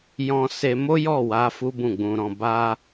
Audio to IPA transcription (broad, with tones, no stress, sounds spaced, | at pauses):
j ɔ̃˧ s e˧ m o˦ j ɔ˦˨ w a˨˦ f u˦ b ũ˦˨ ɡ͡b ũ˧ ɾ ɔ̃˧ b a˧